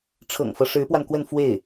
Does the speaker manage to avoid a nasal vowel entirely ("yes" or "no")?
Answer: yes